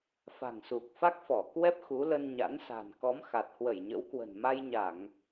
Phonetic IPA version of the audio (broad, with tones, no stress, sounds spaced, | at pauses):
f a̤˨˩ ŋ s u˨˩ k̚ f a˦˥ k̚ f ɔ˧˩ k w ɛ˦˥ p̚ x u˨˦ l ə˧ n ɲ a̰˧˥ n s a̤˨˩ n k ɔ˨˦ m x a˨˩ t̚ h w ə˧˩ j ɲ ə̰˧˥ w k w ə̤˨˩ n m a˧ j ɲ a˧˩˨ ŋ